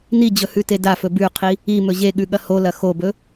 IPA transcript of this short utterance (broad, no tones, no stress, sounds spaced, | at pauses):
n i d͡ʑ ɵ h ʉ t e d a f ɵ b ʉ qʰ i | i m ɵ ʑ e ɠ ʉ ɠ ɐ h o l ɐ x o b ɵ